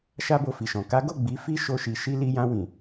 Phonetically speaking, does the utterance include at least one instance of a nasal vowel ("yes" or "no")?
yes